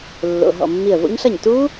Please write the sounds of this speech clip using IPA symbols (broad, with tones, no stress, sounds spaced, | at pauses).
lː o̰˩˧˩ ɦ ɔ̰˧˩ mː i˧˩ ə̯ v o̰˦˥ ɲ ɬ ʌ˥˩ ɲ t u˦˥